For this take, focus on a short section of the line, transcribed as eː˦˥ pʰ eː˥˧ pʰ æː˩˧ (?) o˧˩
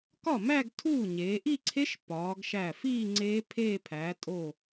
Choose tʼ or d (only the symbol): tʼ